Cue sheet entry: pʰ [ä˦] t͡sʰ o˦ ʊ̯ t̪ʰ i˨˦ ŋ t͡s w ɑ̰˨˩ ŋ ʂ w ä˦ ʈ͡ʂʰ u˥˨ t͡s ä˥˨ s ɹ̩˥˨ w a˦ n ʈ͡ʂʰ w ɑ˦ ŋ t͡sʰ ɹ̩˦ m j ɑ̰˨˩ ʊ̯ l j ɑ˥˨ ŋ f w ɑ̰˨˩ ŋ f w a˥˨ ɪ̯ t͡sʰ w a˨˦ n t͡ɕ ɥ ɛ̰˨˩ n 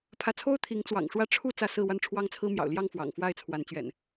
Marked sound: incorrect: ä˨˦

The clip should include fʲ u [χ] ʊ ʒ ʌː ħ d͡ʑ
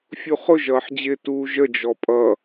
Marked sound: correct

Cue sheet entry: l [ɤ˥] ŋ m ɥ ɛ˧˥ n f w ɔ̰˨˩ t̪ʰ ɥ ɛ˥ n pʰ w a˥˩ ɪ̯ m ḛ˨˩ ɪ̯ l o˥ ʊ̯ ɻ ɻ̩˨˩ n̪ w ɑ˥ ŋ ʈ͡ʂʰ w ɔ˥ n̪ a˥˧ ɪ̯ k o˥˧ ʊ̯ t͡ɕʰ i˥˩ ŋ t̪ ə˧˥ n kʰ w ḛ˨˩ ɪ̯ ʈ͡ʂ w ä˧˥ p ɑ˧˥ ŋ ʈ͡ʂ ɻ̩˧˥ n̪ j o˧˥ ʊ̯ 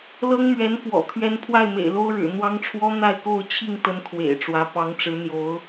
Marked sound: correct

